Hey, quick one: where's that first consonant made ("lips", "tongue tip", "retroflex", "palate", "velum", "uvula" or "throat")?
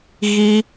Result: velum